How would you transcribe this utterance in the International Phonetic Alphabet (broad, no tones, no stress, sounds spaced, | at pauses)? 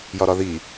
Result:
j ɒ ɾ ɒ ð i